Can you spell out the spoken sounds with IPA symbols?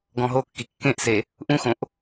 ɡ ɔ̃ ɦ o kː i kː ẽ ʔ s e | ʔ ũ x õ ʔ

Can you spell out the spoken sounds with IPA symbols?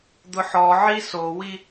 d̪ ʊ ħ ɔ ʕ i s o w i

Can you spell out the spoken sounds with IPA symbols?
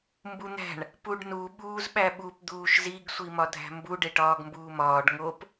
m b u n̪ æ̤ ɳ | p u ɖ n u ɓ uː z ɓ æ ɓ u p d̪ uː ʃ z i ɡ sʷ i m ɒ dʱ æ̤ m b u ɖ e ʈ ɒː ɡ m b uː m ɒː ɖ ŋ o p

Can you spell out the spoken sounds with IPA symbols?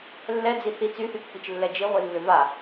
lː ɛ d͡z i θ i t͡s y θ y pː i t͡ʃ lː ɛ d͡ʒ i ʁʷ i lː ʏ v a

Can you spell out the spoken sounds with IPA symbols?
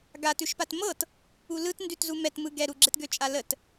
ɡ a t ʉ ʃ p a t m ɤ t | u l ɯ t n d ʉ t z u m ɛ t m ɯ ɡ ɛ ɾ u ɡ͡ǁ ɛ t ɡ ø t͡ʃʼ a l ə t

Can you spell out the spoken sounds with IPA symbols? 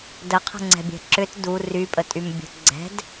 d ə qʰ ə̤ ŋ͡ǀ ɛ̤ bʲ ɛ̤ ǁ ʏ t d u r y pʼ ə tʼ y m bʲ ə̤ ɡ͡ǀ ɛ̤ d

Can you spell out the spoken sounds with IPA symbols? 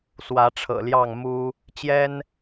s w ä˨˦ ʈ͡ʂʰ ɤ̰˨˩ l j ɑ˥˨ ŋ m u˦ | t͡ɕ j ɛ˦ n

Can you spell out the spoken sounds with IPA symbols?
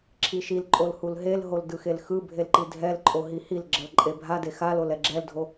ǁʰ i ʃ i l ǃʼ o l h u l ɦ e l ɦ o l d ɯ x e l x ɯ bʱ e l ǃ i dʱ ɛ l ǃʼ o ɦ i h i l ɡ͡ǁ ʌ l ǃʼ e bʱ a d e x a l o l ɛ ɡ͡ǁ ɛ l dʱ o

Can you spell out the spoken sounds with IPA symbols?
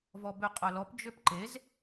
v ɔ b ø qʼ œ l ɔ p d͡ʒ ø p ǃ e z

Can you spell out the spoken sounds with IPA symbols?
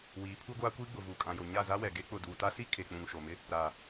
w iː˨˦ pʰ uː˦ ɡʷ aː˦ kʷ iː˦ ɡ͡b ʊ˨ v uː˨ kʼ ã˨ j o˨ ɲ a˦˨ z a˦ w ɛ˨ ɡ e˦ k͡p ʊ˨ d uː˨ t a˦ s i˦ kʰ e˨ k͡p ũ˨ ŋ ʃ o˨ m ɪ˦ | ɾ aː˨

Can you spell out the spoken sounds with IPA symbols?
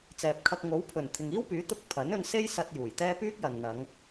t͡s ɛː˨ p̚ kʰ ɐ˧ k̚ ŋ o˨˥ w pʰ ɵ˨˩ n t̪ʰ ɪ˨ ŋ iː˥ w p yː˨˥ t̪ ʊ˧ k̚ pʰ ɐ˨˥ n ɵ˧ n s e˥ j s ɐ˧ t̚ j uː˨˩ j t̪ ɛː˥ p yː˥ k̚ j ɐ˨ n n̪ ɐ˨˧ ŋ

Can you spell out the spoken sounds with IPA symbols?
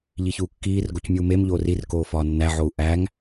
ʎ i ç uː kː iː r ɡ o c mʲ uː m e m ʎ oː r i r k oː f ɒː nː æ ʕ o u̯ ʔ æ ŋ

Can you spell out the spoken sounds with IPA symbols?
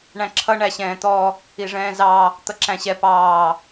ɳ æ̃ ǁʰ ʌ ɳ æ ɕ ɛ̃ː t̪ ɔ | i ʐ ɛ̃ː z ɑ | t̪ ʌ ǁ æ̃ ɕ ɛ p ɑː

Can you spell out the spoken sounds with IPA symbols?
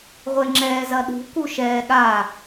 ʁʷ e ŋ͡ǁ ɛː z ɐ ɗ ṳ k u ʃ ɛː ɠ a

